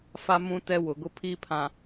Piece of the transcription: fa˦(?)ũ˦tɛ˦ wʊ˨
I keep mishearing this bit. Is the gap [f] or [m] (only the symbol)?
m